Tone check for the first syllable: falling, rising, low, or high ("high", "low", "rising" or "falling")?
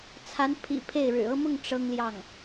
rising